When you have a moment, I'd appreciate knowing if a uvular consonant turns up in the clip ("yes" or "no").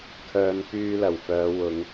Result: no